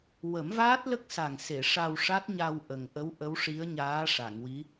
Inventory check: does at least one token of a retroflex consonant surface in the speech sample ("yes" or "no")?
yes